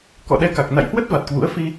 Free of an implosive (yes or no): no